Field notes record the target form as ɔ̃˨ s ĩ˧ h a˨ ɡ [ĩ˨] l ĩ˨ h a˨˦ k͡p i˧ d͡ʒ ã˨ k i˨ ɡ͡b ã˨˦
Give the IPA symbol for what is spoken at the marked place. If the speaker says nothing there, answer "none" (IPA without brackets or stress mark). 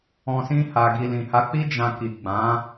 i˨